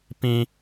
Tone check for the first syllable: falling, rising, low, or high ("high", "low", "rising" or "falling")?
high